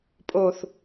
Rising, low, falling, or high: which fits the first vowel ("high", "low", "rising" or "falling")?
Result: low